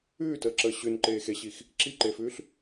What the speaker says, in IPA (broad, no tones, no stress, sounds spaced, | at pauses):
ʉː t əː ǁ əː ɕ ʉ n ǃ eː x e ɕ i x | ǁ i ǃ e f ʉː ɬ